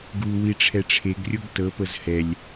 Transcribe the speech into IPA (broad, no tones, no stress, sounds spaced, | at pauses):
ɡ u w i ʈ͡ʂʰ ɛ ʈ͡ʂʰ e ɡ rʲ o ɡ t ɤ p ɤ z h ɛ lʲ